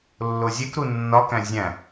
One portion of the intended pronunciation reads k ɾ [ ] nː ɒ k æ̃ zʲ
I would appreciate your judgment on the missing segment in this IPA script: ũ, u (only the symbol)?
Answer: u